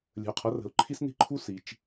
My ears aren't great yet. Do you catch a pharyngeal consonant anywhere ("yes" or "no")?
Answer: no